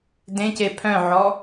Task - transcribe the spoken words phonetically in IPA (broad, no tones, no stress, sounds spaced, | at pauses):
d ẽ c e pʰ œ̃ ʕ ɔ